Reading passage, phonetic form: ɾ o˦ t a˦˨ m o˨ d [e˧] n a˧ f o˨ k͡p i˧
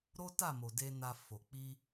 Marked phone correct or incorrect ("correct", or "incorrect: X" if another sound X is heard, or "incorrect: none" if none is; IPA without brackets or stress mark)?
correct